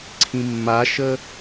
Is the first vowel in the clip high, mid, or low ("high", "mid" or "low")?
high